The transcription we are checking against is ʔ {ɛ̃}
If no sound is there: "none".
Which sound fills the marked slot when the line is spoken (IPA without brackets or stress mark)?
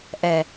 ɛ